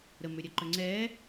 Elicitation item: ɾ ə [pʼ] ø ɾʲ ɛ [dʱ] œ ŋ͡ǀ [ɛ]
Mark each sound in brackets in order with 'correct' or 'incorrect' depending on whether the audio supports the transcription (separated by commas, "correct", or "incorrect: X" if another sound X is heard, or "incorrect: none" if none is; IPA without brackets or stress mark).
incorrect: m, incorrect: ǃ, correct